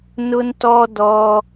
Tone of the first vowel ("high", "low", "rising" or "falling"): high